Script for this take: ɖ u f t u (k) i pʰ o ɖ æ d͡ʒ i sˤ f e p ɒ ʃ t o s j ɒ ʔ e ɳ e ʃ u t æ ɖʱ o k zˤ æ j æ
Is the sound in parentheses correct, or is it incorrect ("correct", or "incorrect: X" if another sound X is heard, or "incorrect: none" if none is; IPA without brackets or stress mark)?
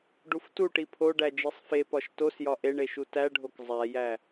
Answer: incorrect: ʈ